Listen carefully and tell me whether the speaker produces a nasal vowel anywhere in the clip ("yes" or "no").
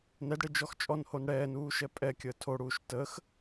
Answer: no